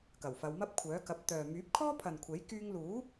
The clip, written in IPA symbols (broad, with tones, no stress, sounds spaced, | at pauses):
k ɐ˨˩ w f ɐ˨˧ w m ɐ˥ p̚ kʷʰ œː˨˥ k ɐ˨˥ p̚ t̪ œː˨ m yː˨˥ p̚ kʰ ɔː˥ pʰ ɐ˨ n kʷʰ e˨˥ j k yː˧ ŋ l uː˨˥